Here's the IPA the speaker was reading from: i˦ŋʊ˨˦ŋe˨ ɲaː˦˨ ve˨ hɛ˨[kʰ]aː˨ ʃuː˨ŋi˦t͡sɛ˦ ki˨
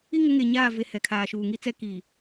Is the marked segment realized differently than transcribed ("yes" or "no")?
no